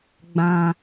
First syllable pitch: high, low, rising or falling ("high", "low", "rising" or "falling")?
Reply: high